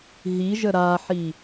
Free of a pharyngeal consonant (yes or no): no